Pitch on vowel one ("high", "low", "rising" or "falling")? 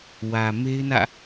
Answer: low